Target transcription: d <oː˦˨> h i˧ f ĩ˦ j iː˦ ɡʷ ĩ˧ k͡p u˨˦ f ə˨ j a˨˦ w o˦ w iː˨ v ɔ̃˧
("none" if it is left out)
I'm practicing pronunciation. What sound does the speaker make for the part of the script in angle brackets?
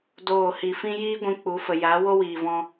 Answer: oː˦˨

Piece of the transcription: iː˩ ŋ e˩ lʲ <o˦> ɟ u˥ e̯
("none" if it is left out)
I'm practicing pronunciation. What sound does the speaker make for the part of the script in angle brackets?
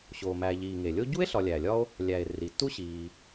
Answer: o˦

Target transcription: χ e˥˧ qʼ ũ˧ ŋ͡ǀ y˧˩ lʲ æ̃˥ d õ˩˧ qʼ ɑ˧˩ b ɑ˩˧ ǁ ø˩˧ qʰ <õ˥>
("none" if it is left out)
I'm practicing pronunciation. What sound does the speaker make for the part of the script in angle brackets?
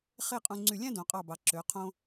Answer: õ˧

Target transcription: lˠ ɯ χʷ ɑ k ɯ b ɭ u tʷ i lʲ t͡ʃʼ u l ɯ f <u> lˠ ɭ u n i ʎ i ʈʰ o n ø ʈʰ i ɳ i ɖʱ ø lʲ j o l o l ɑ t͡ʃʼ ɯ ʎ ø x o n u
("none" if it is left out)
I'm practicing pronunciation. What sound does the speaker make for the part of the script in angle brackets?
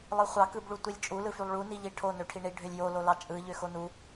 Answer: y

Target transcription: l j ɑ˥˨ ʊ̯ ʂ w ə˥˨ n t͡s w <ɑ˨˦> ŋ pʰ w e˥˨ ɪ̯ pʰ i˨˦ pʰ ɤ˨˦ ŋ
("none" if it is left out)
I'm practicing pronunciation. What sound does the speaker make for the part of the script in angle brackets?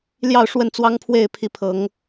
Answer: ɑ˦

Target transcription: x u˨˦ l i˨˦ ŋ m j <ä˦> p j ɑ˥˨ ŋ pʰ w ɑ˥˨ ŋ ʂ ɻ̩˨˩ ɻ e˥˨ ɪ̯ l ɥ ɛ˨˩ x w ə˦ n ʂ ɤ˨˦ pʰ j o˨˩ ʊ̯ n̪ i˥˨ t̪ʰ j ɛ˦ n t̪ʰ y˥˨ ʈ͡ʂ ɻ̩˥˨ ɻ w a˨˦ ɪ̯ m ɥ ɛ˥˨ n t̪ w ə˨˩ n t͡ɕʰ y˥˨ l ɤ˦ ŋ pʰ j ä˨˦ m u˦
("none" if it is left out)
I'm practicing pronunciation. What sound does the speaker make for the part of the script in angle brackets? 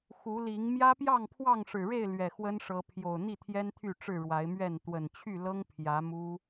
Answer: ä˦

